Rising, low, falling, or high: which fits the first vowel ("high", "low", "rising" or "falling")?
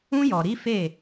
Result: high